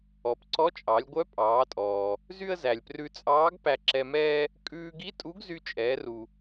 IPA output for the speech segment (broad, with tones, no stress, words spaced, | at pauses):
ɔ˩˧pǀɔ˧˥t͡ʃʼɑ˩˧lʲ ɡʷœ˧˥pʼɑː˩˧tʼɔː˩ | zy˥ə̯zæ˩lʲ prʉ˧t͡sʼɑː˧˥ɡ pæ˧ǁɛ˧mɛː˥ | kʼʉː˧ɡi˧˥ tʼu˧˥ɡzy˧t͡ʃʼɛː˩˧r u˩